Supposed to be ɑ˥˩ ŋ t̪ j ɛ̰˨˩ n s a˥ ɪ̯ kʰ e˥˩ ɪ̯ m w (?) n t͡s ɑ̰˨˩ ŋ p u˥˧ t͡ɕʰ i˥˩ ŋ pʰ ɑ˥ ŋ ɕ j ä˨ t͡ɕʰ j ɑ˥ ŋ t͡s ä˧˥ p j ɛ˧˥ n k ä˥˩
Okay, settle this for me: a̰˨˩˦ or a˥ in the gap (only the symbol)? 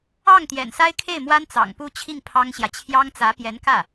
a˥